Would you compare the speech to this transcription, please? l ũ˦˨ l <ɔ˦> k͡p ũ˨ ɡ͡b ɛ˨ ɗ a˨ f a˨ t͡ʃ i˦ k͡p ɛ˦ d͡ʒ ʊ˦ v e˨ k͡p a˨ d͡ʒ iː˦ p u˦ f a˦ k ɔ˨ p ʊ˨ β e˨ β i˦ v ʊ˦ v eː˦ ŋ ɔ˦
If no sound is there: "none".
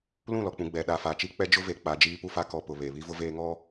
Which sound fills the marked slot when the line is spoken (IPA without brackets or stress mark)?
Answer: ɔ˨